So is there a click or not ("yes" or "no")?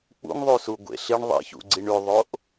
yes